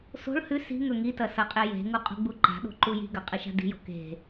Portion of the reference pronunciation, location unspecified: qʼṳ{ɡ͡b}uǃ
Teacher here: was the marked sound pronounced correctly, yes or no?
yes